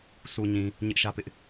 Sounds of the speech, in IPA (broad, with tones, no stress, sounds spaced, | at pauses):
s u˨ ɲ ĩ˨ | ɲ ɪ˦ ʔ ʃ ä˦ p ɪ˦ ʔ